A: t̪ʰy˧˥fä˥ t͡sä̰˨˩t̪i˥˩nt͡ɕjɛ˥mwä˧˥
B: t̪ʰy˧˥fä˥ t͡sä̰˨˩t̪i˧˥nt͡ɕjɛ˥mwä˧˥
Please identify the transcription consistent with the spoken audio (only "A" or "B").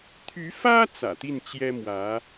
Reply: A